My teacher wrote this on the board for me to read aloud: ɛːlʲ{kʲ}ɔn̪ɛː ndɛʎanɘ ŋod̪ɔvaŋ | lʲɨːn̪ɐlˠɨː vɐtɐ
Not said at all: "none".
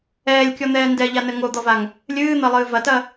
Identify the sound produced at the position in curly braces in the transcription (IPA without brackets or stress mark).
kʲ